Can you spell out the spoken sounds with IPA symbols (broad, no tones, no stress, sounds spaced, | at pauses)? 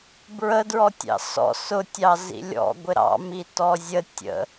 b ɹ ə d ɹ ɔ tʲ ɑ̰ s ɔ̰ s ʊ tʲ ɑ z ḭ lʲ ɔ̰ ɡʷ ɪ ɾ ɑ̰ m i t ɔ zʲ ə tʲ ə̰